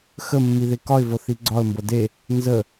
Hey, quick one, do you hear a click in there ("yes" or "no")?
yes